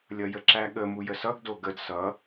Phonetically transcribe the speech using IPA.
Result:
lʲʌjəǁæɠə mujəsʌɡ doɡəd sʌ

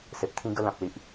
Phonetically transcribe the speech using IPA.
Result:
se˨p̚t̪ʰĩ˦ɡə˦ lã˨p̚li˨ʔ

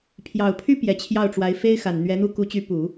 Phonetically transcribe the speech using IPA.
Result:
pʰjɑ˨˩ʊ̯pʰy˥ pjɛ˨˩t͡ɕʰjɑ˥˩ʊ̯ʈ͡ʂwa˧˥ɪ̯ fe˥ɪ̯xa˨˩n n̪ɥɛ˧˥n̪u˥˩ ku˧˥t͡ɕy˧˥ pu˨˩˦

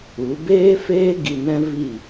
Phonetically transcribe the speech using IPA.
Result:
u˨˦ beː˦feː˦ ɡi˧nɛ̃˦vi˦˨

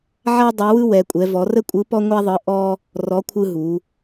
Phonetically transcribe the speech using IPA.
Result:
ʕa˥ dˤɛ˧˥wɯ˥ wɛ˧˥kʷʼɛ˧˥vɔ˧˥ rə˥kʷʼɯ˧˥ pɔ˥ŋʷa˥ðˤɯ˧˥ ʔɔ˥ | rɔ˧˥ kʷʰɯ˥ɦu˧˥

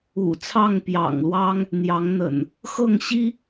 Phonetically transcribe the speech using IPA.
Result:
ṵ˨˩ t͡sʰɑ˥˨ŋpjɑ̰˨˩ŋlwɑ˦ŋ | n̪jɑ˨˦ŋn̪ə̰˨˩n | xɤ˥˨ŋɕi˦

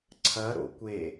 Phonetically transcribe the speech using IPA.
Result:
ǀʰɐ ɾo̰kʷe

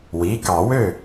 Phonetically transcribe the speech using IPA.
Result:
wi˩˧˩ kɑ˨˩˦wø˥˩

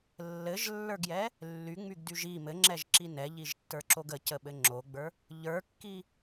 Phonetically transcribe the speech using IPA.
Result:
lːɘʒlːə˞ɡjɛ | lːyŋ͡myɡdyʒ i mɘŋ͡ǁɛʒǁi nɛʎiʒtːə˞ǁoɡ əcəɓɘ ŋ͡ǁoɡ͡bə˞ | ʎə˞kːi

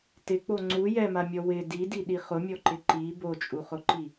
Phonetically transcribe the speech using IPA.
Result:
tɪk͡po ŋ͡ǀu jɛmamʲɔ wɪ didiɗi χʊmʲɔǃɪ ǃi bot͡ʃʼuχʊǃi

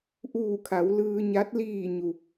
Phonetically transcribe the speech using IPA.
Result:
ʔuː˧˩kʰa˩˧w lɯː˧ɲa˧˥t̚ liː˧˩ ɲu˩

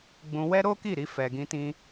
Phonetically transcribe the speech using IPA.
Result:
ɡ͡bũ˧ wɛ˦ɾo˦ki˦˨ɾi˧ fɛ˨ɡĩ˧tĩ˧

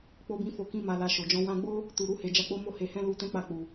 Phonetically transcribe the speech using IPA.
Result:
k͡po˧bĩ˧fo˨kĩ˧ ma˨la˨ ʃo˨d͡ʒɔ̃˨˦ wã˧ɡ͡bo˦ | tu˨ɾu˧he˨ d͡ʒa˨˦k͡po˧ mo˧he˨hɛ̃˧ lu˧ tɛ̃˦k͡pa˦˨k͡pu˨

